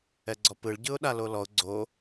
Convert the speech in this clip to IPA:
ɛ ɡ͡ǀ ɔ p ɯ ɭ ɟ ɯ ʊ̯ ɗ a l o l ɔ ʊ̯ ɡ͡ǀ o

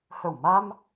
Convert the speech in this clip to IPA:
h ə˧˩ w m a˧ m

